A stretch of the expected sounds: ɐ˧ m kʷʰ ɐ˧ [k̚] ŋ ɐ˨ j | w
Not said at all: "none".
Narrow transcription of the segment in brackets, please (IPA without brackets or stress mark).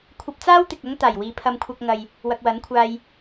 k̚